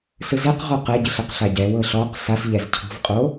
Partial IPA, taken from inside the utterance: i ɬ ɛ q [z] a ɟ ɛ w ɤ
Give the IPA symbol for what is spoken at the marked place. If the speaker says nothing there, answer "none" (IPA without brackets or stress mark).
ɬ